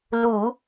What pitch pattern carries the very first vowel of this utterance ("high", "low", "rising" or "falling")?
low